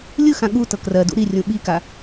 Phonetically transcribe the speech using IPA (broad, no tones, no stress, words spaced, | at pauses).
lʲɯxã ɠu tɤkrɜdṵ ɾirʲũ ɓika